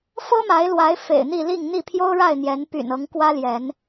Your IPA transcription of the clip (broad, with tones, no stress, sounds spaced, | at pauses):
f ɤ˦ m a˨˦ ɪ̯ l w a˨˦ ɪ̯ f ḛ˨˩ ɪ̯ n̪ i˥˨ l i˥˨ ŋ n̪ i˥˨ pʰ j o˦ ʊ̯ ɻ a˥˨ ɪ̯ n̪ j ɛ˨˦ n p y̰˨˩ n ɤ˨˦ ŋ k w ä˦ l j ɛ˨˦ n